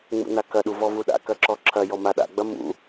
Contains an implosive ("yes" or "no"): yes